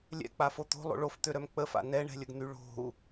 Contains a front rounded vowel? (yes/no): yes